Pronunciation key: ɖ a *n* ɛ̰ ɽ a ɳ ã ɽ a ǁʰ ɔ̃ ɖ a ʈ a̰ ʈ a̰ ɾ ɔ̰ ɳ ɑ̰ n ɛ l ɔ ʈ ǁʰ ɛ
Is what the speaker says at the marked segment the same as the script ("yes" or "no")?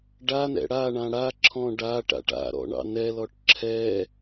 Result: yes